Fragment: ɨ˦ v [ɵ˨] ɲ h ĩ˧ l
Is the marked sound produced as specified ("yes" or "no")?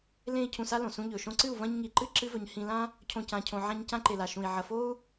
yes